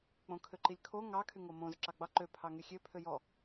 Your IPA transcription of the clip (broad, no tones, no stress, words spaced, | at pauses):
k͡põkʰøǃilʲkʰo ŋɑ kʰyŋomõz ǁɑɡ͡bɑ ǃø pʰɑŋyxʲø pʰøjɔ